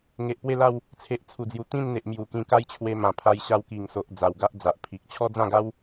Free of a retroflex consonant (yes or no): yes